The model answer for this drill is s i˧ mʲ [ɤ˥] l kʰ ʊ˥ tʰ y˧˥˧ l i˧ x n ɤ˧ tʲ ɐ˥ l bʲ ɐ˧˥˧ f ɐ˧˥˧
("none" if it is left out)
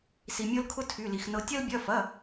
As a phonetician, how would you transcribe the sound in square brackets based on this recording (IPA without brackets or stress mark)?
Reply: ɤ˥